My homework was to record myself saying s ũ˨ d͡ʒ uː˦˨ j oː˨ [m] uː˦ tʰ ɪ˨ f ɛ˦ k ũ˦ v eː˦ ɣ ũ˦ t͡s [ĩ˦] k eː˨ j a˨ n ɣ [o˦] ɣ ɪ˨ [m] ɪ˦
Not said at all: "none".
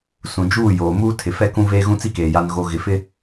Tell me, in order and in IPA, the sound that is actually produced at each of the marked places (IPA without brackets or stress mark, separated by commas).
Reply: m, i˦, o˨, f